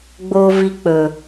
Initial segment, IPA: ɡ͡b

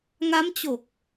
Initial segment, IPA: ŋ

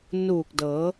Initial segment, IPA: n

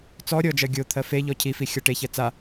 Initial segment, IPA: t͡s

